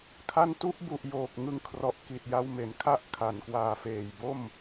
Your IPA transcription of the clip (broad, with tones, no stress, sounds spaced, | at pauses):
kʰ a˦˥ n t u˦˥ ʔ b u˨˩ ʔ j oː˨˩ k̚ ŋ ɯ˧ ŋ kʰ r ɔ˨˩ ʔ k i˨˩ t̚ j a˧ w m e˩˦ n kʰ a˥˩ ʔ kʰ a˨˩ n k w aː˨˩ f eː˨˩ j b o˥˩ m